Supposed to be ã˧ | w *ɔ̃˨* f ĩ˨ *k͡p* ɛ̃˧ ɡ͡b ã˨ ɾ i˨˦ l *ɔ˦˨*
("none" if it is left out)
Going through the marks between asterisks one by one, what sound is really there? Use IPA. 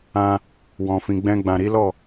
ɔ̃˨, ɡ͡b, ɔ˦˨

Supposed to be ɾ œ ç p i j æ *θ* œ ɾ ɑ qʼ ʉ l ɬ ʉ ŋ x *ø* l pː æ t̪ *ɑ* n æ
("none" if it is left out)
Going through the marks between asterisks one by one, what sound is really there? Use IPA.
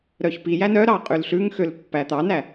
n, ø, ɑ

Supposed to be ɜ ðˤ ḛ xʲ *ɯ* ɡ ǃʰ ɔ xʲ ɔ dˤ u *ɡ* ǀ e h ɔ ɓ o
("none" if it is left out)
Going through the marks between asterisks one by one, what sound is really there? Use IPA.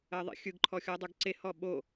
ɯ, ɡ

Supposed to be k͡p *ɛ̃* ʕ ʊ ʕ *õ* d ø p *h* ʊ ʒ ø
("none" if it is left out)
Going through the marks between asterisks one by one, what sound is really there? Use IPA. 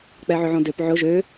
ɛ, õ, ʕ

